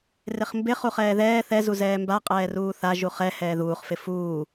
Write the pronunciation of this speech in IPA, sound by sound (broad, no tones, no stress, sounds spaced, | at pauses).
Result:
r ɪ χ m b ɪ χ u χ ɛː ð ɛː θ ɛ z u z ɛː m b a qʼ ɛː r uː θ a ʒ u χ ɛ h ɛː ð uː χ f ɪ f uː